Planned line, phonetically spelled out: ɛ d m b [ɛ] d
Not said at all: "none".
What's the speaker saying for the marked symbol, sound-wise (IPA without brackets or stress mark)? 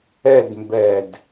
ɛ